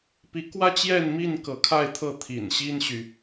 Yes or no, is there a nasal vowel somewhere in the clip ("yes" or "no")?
no